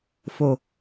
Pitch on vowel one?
low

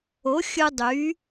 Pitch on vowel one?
rising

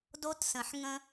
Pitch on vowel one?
high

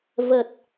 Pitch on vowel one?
low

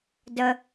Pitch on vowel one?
high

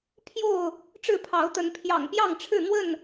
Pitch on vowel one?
falling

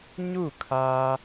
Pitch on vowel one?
falling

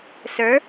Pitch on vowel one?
rising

